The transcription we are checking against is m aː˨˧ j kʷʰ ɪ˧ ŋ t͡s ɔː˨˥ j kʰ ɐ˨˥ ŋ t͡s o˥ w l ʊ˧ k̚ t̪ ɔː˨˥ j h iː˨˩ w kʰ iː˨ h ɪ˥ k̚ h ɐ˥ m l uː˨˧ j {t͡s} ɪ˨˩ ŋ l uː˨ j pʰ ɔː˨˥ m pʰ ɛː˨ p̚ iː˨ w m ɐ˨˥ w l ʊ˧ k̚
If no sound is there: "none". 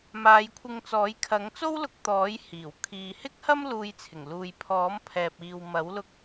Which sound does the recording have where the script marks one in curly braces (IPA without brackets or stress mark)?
t͡sʰ